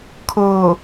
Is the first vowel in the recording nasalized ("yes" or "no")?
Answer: no